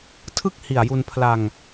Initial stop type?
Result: aspirated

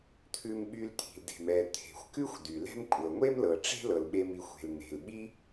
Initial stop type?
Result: aspirated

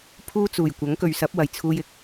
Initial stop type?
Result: aspirated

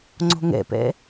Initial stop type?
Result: click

